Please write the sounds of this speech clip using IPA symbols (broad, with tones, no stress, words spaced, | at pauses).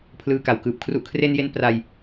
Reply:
pʰlɯː˧ka˨˩wkɯː˨˩p̚ kʰru˨˩ʔkʰre˧nje˧n pra˧j